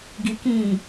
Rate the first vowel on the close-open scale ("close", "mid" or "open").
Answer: close